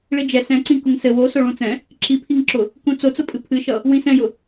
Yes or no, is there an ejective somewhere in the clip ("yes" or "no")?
yes